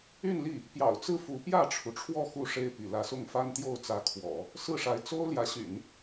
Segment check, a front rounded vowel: present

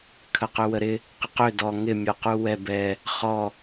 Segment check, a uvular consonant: present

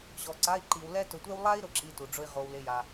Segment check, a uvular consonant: present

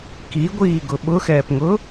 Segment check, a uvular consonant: absent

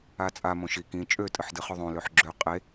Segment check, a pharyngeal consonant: present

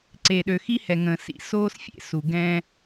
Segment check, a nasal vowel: present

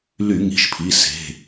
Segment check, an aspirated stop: present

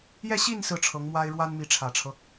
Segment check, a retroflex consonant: present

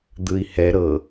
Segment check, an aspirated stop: absent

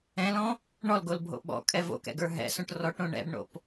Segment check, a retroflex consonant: present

